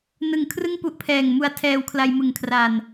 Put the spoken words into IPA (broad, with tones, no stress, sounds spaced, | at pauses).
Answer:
n ɯ˨˩ ŋ kʰ r ɯ˥˩ ŋ p u˦˥ ʔ pʰ ɛː˨˩ ŋ m u˧ a̯ tʰ ɛː˧ w kʰ l a˧ j m ɯ˨˩ ŋ kʰ r a˨˩ n